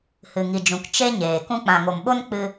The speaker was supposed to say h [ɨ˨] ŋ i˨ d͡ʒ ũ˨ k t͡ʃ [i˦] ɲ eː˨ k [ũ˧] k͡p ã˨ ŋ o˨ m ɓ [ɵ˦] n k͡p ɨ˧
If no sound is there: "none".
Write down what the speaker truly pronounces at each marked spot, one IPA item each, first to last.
ɨ˨, e˦, ũ˧, o˦

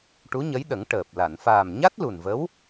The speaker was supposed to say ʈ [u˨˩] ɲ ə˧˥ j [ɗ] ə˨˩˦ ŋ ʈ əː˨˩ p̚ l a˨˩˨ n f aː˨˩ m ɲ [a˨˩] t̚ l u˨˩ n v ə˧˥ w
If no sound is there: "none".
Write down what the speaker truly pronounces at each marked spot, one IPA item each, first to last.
u˧˥, ɗ, a˦˥

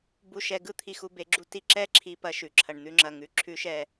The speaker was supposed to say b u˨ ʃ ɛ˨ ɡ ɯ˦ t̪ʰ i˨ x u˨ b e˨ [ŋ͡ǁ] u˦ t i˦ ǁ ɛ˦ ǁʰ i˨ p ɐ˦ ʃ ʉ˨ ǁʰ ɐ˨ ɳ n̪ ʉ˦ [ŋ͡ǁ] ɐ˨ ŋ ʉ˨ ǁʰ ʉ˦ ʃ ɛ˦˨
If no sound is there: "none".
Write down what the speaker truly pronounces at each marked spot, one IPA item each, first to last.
ɡ͡ǁ, ŋ͡ǁ

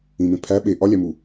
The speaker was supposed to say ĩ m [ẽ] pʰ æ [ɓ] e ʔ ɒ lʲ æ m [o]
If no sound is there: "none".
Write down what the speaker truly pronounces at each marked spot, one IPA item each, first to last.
ẽ, ɓ, u

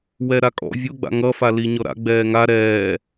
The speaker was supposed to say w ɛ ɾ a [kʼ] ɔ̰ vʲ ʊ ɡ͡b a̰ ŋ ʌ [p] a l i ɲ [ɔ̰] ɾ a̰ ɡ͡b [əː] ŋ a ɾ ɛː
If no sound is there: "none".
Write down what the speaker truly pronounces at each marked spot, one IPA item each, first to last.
kʼ, f, ɔ, ɛː

